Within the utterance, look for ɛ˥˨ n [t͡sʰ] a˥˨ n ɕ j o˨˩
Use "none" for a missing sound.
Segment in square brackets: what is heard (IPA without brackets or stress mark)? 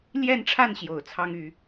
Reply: ʈ͡ʂʰ